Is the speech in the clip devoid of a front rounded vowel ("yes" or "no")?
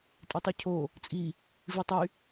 no